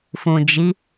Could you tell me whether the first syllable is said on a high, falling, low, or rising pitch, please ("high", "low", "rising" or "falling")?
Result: low